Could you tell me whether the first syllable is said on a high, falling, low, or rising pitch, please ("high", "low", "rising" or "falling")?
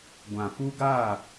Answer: low